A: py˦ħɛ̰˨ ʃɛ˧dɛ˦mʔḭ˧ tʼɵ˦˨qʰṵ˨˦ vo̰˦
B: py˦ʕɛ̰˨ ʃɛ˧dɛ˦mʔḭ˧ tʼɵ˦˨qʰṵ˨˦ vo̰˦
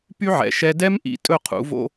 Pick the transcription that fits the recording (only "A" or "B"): B